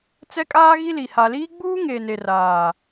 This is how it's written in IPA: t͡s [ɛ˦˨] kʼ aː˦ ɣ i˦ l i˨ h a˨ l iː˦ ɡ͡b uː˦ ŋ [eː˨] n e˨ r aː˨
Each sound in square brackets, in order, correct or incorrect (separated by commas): incorrect, correct